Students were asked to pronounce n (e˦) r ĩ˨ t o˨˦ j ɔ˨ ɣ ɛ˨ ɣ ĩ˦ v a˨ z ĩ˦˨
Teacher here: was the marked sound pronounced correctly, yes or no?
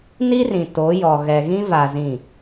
no